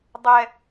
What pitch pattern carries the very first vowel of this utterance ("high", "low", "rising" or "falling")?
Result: high